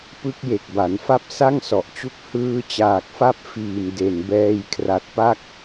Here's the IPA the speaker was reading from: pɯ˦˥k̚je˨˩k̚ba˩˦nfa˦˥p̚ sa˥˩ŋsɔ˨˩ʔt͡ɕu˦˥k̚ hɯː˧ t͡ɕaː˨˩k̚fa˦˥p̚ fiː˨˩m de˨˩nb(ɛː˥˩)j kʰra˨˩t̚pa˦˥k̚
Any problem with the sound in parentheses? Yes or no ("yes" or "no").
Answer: yes